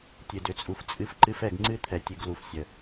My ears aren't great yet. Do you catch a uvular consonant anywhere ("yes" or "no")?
no